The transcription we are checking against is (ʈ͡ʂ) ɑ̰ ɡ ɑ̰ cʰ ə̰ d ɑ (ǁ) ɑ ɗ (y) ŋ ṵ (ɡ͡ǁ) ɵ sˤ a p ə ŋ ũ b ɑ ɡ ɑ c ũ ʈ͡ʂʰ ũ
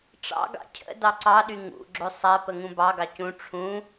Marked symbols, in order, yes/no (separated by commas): yes, no, yes, yes